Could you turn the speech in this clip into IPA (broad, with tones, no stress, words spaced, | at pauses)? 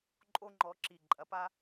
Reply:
ǃʼo˥ŋ͡ǃɔ˧˥ǁi˧˩ ǃʼɐ˧˥pa˥